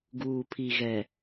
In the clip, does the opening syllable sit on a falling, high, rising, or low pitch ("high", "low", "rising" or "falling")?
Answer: low